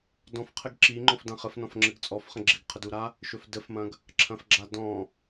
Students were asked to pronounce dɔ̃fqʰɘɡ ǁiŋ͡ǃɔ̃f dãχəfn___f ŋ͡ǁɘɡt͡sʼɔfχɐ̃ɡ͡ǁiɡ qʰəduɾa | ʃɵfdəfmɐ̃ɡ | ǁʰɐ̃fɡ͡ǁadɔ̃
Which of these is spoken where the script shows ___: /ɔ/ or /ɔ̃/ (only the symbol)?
ɔ̃